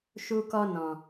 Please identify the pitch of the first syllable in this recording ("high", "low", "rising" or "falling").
high